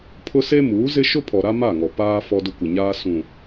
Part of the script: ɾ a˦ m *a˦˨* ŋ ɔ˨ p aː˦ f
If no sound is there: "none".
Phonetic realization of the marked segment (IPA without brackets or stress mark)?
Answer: a˦˨